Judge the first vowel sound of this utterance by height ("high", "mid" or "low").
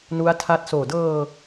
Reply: high